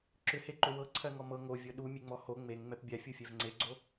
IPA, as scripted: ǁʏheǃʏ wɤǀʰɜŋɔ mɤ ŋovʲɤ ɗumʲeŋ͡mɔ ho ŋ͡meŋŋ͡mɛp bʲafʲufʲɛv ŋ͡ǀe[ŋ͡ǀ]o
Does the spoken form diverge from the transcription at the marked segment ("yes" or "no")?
yes